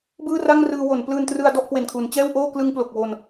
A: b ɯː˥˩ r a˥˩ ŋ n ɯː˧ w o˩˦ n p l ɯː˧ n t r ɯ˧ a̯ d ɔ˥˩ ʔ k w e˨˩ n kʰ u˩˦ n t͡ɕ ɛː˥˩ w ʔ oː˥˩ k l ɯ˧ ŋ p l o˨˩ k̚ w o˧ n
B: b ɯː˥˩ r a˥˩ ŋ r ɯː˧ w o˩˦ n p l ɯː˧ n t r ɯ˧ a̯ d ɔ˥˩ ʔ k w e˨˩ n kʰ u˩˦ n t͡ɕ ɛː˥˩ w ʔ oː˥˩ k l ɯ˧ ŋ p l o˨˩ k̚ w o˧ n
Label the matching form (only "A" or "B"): B